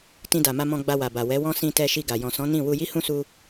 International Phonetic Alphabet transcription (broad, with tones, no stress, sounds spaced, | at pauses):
t ĩ˧ d a˨ m a˧ m ɔ̃˧ ɡ͡b a˧ w a˨ b a˨ w ɛ˨˦ w ɔ̃˦ s ĩ˧ t ɛ˧ ʃ i˧ ɡ a˨ j ɔ̃˨ s ɔ̃˨˦ n ĩ˦˨ w u˧ j i˦ h ũ˦ s u˧